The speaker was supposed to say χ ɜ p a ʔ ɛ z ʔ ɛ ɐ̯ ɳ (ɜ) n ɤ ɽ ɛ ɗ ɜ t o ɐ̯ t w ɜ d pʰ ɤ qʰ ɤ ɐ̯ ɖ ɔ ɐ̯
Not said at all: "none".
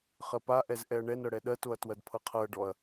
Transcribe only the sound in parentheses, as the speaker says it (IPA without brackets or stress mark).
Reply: ɛ